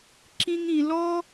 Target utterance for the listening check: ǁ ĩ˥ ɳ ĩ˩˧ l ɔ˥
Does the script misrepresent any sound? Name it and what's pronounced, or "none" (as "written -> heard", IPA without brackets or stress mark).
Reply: ɳ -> ŋ